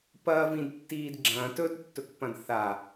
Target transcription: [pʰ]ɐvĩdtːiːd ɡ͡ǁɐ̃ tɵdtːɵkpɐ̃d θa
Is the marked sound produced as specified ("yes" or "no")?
no